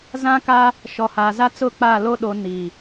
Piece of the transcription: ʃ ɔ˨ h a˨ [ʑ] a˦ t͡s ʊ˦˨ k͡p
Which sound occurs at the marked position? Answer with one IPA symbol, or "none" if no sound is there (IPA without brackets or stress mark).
z